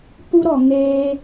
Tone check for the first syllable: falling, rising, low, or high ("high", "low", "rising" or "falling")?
high